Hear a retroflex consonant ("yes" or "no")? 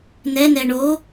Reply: yes